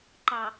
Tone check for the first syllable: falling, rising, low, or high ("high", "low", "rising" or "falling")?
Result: low